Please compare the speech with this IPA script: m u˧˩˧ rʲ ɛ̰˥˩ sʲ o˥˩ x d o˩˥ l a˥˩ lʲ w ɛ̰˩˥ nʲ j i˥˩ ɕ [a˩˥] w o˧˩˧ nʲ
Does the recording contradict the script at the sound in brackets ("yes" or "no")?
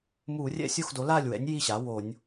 no